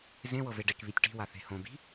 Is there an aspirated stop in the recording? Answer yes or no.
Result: no